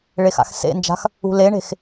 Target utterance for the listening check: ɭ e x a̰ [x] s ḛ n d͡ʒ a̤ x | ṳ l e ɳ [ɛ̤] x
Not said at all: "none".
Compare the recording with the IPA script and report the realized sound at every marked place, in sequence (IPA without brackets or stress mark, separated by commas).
x, e̤